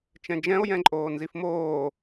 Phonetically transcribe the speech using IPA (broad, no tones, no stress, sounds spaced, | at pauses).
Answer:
t͡ʃ ɛ̃ d͡ʒ ɛ̃ o̯ j ɛ̃ ǃʼ oː n z i f m oː